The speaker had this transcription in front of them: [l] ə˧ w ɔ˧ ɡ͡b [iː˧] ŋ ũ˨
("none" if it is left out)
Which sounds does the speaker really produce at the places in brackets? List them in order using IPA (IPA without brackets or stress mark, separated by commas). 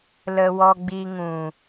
l, i˧